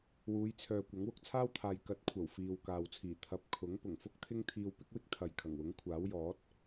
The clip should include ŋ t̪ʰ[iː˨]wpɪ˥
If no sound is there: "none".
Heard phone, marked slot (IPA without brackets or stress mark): iː˧